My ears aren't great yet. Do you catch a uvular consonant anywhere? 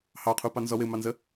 yes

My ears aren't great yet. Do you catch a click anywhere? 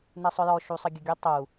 no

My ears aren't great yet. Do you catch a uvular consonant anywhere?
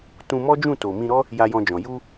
no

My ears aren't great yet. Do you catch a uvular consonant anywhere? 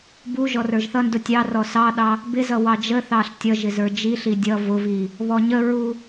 no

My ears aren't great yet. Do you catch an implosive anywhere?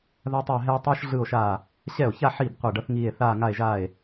no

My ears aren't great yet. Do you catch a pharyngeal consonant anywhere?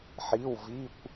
yes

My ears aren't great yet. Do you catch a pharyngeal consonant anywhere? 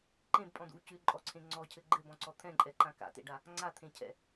no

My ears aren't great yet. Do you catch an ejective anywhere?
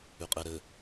yes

